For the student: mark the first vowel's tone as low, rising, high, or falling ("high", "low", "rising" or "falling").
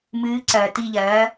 rising